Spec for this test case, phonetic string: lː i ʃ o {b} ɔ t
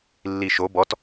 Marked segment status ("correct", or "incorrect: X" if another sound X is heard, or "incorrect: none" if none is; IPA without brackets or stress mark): correct